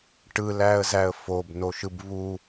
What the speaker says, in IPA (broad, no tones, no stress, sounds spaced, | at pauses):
ʈ ɯ l æ ə̯ z æ ə̯ f o b n o ʃ ɯ b β u